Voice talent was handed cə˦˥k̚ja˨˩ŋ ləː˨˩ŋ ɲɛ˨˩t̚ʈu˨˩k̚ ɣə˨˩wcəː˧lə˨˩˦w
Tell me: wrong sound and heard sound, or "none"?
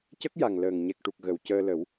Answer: t̚ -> k̚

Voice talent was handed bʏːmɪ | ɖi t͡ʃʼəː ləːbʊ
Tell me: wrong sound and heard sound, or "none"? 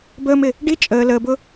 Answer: ʏː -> əː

